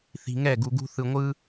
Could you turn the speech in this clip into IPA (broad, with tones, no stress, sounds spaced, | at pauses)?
θ i̤˧ ŋ ɛ˥˨ ɡ u˧ ɡ ṳ˥ θ ɯ˧ ŋʷ ɯ˥